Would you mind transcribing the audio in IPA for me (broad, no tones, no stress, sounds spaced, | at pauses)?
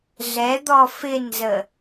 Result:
ɮ ɛ d̪ ɔ f ɪ n z ə